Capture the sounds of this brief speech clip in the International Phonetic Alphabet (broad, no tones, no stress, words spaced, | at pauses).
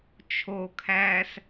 t͡ʃʰokʰæːs